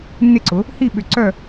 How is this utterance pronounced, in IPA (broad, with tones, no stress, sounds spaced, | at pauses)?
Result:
nː ɪ˥˨ ǀ ʊ˩˥ | h i˥˨ ɓ ʏ˧˩ ǀ œ˥˨